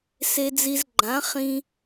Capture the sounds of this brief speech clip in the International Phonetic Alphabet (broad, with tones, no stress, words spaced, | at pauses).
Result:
se˧d͡zi˧zɡ͡ǃã˨˦ χĩ˧